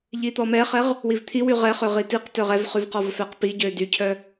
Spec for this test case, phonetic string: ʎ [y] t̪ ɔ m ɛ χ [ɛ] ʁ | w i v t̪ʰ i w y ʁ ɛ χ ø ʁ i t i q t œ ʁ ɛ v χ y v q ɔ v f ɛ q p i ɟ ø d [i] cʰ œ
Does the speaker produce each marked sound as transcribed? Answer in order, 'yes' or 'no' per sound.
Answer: no, yes, no

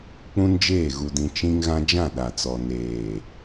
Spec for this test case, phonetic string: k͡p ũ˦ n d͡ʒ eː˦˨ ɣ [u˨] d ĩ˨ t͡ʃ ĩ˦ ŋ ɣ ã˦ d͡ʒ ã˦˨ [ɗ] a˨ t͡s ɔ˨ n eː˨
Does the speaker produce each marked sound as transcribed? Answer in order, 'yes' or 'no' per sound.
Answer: yes, yes

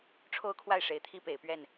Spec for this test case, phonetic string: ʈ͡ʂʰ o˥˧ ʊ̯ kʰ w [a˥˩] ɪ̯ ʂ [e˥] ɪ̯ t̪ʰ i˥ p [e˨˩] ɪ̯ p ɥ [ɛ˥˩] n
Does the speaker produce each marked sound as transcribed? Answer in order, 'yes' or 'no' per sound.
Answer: yes, no, yes, yes

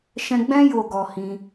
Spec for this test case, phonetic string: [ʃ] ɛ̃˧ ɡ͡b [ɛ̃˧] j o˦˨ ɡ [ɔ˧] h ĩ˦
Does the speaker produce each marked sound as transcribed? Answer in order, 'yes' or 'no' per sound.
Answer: yes, no, yes

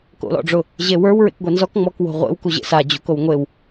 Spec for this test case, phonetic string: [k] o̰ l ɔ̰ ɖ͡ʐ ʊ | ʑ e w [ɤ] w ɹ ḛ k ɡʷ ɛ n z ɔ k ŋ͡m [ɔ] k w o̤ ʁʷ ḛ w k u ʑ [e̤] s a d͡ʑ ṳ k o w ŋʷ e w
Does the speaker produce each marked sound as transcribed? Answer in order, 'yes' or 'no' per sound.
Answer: yes, no, yes, no

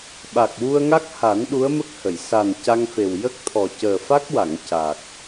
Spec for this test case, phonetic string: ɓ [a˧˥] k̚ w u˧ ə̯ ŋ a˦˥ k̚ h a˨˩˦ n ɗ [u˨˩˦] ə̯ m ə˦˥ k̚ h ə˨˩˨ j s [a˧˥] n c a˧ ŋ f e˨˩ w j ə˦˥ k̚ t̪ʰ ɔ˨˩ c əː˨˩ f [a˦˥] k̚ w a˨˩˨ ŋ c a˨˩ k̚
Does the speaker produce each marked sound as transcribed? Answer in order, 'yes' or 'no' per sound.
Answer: no, no, no, yes

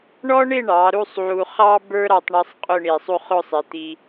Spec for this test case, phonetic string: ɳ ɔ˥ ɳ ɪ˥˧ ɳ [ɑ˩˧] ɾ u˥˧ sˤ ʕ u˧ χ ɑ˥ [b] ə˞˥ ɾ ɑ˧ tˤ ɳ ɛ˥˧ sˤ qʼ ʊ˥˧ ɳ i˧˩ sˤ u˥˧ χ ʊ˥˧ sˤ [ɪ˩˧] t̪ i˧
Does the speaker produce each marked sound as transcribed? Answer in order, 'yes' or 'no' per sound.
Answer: yes, yes, yes

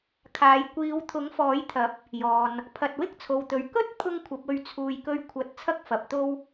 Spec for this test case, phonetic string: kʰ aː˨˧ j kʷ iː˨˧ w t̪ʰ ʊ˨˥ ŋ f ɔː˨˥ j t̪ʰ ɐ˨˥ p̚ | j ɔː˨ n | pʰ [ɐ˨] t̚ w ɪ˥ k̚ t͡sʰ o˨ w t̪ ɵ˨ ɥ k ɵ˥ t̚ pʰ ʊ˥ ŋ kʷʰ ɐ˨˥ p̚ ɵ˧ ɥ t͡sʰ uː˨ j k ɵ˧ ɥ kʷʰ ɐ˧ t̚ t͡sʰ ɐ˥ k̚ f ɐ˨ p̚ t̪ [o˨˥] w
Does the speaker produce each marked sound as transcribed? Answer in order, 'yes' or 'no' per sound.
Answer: yes, no

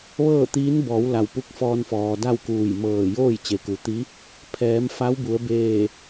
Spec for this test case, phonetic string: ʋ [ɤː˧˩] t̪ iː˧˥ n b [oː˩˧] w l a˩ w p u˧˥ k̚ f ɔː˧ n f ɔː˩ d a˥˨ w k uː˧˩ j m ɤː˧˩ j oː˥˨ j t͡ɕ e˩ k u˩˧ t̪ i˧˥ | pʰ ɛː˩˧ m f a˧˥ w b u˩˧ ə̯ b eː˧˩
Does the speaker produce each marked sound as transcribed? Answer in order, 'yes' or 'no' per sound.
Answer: no, no

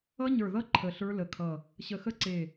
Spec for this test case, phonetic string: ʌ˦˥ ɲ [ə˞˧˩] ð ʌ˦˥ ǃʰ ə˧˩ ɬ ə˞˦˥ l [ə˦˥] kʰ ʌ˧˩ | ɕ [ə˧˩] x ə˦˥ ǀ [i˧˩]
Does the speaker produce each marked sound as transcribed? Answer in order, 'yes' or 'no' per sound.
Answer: yes, no, yes, no

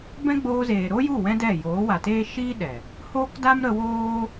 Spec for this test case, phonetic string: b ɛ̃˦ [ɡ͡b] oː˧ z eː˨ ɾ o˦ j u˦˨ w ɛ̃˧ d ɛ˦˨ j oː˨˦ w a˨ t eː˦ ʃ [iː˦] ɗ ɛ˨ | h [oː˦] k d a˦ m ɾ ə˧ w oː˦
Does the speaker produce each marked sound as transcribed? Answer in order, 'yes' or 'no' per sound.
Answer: yes, yes, yes

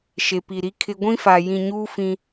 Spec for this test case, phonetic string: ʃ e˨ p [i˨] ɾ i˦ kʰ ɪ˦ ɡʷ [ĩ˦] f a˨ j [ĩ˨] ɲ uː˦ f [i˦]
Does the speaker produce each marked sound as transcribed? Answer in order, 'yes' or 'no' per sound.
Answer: yes, yes, yes, no

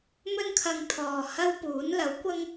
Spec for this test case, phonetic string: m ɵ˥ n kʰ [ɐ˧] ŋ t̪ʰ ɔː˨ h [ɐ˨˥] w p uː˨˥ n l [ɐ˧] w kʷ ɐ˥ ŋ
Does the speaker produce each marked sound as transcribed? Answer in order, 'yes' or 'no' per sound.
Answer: yes, no, no

